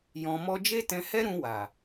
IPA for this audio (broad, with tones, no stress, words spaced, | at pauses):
jɔ̃˧mɔ˦ d͡ʒe˦tɛ̃˧hɛ˦ ɾũ˧ wa˨